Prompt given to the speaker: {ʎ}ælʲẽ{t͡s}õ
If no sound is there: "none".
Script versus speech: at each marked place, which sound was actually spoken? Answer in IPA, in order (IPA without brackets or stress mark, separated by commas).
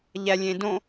ʎ, d